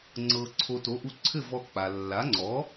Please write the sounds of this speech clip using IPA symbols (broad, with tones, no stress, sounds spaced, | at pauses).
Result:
ŋ͡ǀ ɤ˧ ǀʰ o˧ t o˩˥ ʔ u˧ ǀʰ ɘ˥˩ v ɔ˧ k͡p a˩ lː a˩˥ ŋ͡ǀ ɔ˩˥